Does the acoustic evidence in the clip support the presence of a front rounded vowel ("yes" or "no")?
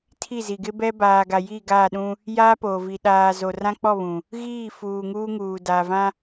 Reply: no